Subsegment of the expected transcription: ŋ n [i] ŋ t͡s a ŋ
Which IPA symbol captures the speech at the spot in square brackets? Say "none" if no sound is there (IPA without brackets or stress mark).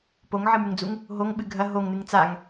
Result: ɨ